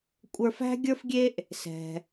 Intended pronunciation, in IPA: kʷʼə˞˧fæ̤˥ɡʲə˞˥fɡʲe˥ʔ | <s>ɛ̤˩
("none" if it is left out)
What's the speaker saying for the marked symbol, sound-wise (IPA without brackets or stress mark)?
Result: s